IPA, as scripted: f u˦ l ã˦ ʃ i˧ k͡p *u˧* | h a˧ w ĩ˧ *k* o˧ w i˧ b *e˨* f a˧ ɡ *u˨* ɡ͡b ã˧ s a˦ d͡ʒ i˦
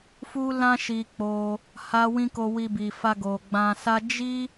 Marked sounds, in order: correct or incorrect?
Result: incorrect, correct, incorrect, incorrect

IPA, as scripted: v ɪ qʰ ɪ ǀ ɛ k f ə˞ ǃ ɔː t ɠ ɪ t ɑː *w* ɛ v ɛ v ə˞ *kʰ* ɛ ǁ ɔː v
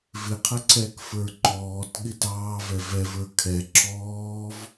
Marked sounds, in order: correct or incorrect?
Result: incorrect, correct

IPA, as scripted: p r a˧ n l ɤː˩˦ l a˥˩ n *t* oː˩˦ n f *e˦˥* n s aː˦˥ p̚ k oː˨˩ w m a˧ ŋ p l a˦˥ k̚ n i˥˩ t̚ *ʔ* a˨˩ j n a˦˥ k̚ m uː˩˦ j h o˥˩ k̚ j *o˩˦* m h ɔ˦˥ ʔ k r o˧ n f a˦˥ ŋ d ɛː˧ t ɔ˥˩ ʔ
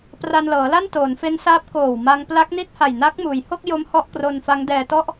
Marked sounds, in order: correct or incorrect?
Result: correct, correct, incorrect, incorrect

